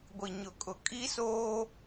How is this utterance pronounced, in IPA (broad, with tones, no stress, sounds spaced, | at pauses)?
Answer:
ɡʷ i˨ ɲ ʊ˨ kʼ ʊ˨ kʼ i˦ s oː˦